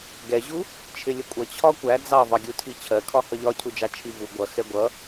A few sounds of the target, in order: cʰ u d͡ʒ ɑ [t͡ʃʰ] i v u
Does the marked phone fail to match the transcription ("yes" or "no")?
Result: no